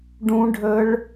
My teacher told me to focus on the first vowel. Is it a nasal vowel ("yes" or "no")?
yes